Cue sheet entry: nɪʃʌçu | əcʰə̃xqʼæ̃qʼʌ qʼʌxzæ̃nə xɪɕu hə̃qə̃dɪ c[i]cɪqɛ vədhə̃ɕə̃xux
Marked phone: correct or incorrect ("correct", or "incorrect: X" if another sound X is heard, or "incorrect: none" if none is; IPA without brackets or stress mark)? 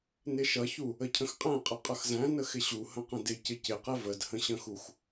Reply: incorrect: ɪ